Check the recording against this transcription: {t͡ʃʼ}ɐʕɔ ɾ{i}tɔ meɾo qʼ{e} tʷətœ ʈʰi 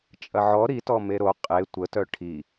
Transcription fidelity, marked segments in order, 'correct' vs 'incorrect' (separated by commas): correct, correct, correct